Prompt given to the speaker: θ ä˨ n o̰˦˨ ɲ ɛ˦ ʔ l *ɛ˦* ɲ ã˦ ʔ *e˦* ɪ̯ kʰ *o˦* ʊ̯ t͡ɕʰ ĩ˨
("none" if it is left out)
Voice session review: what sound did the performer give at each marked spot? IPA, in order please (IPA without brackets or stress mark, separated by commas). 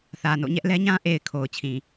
ɛ˦, e˨, o˨